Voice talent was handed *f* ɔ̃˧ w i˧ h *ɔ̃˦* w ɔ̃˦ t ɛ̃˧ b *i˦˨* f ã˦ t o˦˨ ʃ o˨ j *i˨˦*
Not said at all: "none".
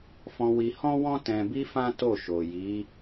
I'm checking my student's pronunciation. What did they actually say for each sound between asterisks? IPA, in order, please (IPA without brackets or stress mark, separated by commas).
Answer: f, ɔ̃˦, i˦, i˨˦